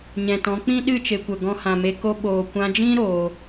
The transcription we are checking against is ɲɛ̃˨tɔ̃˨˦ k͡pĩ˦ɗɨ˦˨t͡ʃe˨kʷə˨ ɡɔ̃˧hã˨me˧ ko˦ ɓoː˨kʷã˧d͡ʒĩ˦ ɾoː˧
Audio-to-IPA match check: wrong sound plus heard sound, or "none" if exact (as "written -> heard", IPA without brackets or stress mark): none